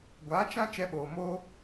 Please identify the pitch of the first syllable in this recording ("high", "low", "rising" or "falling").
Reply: rising